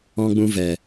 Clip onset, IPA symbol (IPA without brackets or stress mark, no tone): ɔ̃